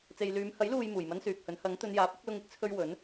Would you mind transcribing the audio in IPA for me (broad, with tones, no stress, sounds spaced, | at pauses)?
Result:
t͡s e˨ j l yː˨˧ m h ɐ˨˥ j l uː˨ j m uː˨˩ j m ɐ˥ n s yː˨ k̚ h ɵ˨˥ n h ɐ˨˥ ŋ t̪ ɵ˨˧ n j aː˨˥ p̚ ɪ˨˥ k̚ l ʊ˧ ŋ ɪ˥ k̚ t͡sʰ ɵ˧ ɥ w ɵ˨˥ n